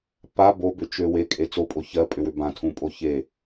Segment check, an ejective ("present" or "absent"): present